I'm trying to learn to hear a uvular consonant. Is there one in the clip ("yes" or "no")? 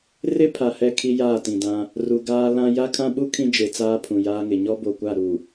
no